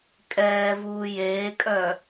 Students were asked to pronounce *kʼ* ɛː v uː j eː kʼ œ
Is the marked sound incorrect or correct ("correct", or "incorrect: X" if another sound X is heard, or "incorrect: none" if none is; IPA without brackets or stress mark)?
correct